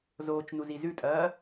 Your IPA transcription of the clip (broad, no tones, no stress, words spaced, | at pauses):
zoːt͡ʃnuzi zʉtʼɐː